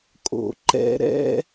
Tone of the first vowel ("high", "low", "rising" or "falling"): low